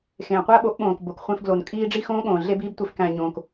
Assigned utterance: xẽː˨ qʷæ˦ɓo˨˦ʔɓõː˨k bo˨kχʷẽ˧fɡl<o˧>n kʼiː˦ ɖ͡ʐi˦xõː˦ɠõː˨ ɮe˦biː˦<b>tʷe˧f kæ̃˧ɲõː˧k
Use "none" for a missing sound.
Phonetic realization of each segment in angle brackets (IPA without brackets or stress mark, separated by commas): o˨, b